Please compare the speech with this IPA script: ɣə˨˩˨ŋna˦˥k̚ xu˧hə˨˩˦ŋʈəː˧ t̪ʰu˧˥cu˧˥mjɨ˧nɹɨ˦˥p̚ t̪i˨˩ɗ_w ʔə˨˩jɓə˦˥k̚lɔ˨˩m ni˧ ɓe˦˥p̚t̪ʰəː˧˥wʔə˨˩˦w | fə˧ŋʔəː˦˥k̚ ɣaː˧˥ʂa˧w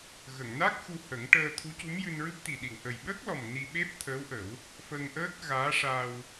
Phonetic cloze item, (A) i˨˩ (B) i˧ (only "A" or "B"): A